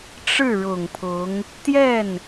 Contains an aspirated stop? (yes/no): yes